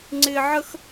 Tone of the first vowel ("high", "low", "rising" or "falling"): high